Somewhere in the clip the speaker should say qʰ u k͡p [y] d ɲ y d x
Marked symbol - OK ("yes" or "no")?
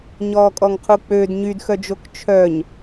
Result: no